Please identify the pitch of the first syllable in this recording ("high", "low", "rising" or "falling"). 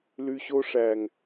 low